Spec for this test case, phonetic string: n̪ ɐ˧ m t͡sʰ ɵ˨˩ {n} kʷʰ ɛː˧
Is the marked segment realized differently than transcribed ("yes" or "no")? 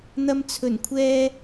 no